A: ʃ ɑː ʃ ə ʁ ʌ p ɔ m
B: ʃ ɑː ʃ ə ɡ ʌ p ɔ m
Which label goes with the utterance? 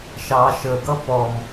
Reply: B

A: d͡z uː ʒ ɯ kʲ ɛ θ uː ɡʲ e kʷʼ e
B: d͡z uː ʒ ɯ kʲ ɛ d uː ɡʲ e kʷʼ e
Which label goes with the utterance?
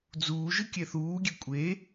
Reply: A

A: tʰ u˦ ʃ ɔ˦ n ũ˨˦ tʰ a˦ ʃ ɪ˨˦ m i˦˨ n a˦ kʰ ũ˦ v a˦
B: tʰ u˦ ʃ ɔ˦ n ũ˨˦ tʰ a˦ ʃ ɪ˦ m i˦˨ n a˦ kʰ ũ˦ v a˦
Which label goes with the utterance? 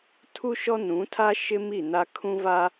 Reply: B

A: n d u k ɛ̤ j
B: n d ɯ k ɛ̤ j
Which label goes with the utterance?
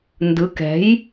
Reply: B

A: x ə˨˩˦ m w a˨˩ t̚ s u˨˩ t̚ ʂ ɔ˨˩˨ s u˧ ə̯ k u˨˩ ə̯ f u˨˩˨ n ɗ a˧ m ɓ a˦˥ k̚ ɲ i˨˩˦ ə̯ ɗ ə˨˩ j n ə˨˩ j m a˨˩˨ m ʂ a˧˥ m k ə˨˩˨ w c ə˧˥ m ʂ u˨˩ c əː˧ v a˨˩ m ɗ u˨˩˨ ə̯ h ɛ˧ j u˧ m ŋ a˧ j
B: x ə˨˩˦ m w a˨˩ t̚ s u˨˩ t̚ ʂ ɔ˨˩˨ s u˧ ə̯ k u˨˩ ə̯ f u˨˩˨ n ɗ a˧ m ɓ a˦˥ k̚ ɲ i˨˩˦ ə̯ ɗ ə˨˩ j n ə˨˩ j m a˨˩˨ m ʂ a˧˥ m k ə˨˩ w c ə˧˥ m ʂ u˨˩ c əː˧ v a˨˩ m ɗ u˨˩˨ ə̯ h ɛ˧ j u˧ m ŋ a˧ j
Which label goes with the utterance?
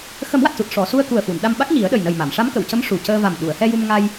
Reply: A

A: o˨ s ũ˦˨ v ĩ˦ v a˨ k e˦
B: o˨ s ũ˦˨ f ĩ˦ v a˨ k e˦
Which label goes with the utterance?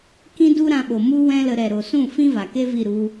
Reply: B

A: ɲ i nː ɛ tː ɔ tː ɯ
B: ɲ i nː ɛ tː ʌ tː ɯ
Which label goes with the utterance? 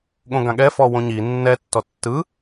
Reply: A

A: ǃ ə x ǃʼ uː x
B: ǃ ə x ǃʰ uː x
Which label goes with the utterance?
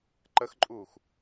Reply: A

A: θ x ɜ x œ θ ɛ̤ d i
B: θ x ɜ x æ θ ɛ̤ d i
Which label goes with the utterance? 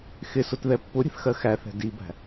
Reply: B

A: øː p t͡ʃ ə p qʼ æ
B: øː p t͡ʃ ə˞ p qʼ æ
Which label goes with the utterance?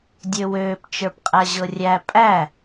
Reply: B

